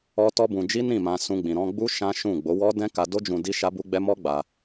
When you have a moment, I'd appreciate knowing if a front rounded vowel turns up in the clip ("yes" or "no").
no